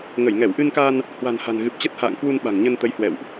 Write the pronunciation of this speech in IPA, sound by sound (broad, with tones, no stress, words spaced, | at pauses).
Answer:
ŋə˧˩jŋɛ˧˩wʔɨ˧nka˧n | hwa̤˨˩n ha̤˨˩nɣɨ˨˩p̚t͡ɕə˦˥t̚ha̰ː˧˨ŋ kwu˧n ɓa̤˨˩ŋɲə˧n t̪ə˨˦jhwɛ̰˧˨wʔ